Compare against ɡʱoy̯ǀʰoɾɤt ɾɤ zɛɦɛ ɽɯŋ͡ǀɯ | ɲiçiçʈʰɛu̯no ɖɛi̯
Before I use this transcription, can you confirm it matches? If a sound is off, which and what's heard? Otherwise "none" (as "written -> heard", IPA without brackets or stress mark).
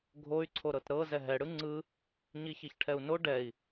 none